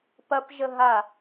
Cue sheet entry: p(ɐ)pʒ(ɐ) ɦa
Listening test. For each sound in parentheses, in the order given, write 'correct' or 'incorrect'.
correct, incorrect: ə

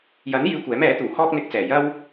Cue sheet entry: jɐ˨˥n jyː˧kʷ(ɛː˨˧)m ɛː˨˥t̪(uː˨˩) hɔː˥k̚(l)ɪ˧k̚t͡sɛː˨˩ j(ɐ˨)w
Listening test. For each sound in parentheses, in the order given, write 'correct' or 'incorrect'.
incorrect: ɛː˨˥, correct, incorrect: n̪, incorrect: ɐ˧

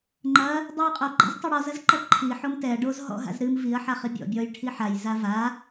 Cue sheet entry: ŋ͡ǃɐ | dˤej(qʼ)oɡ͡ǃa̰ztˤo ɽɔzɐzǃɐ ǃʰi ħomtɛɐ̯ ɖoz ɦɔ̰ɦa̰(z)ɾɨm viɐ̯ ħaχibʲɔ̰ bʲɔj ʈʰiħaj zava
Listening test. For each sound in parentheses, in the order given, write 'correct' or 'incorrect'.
correct, correct

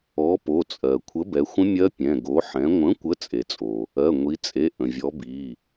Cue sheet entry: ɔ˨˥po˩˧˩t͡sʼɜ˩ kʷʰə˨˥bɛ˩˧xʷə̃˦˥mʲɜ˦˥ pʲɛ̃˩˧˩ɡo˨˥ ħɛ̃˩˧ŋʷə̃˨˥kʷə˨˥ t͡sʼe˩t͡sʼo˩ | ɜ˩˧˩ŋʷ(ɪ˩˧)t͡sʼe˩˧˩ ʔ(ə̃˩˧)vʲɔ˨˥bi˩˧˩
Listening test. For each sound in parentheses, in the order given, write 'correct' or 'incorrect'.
incorrect: i˩˧, incorrect: ə̃˩

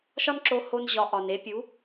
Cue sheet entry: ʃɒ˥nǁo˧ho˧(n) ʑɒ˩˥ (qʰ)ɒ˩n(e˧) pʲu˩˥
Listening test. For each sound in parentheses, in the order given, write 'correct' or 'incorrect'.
correct, incorrect: ʔ, incorrect: e˩˥

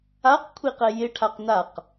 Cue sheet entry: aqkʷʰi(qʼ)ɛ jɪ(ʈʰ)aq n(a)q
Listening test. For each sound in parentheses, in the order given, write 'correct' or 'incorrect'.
incorrect: q, correct, correct

